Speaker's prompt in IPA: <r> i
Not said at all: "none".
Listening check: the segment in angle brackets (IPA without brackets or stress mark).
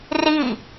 r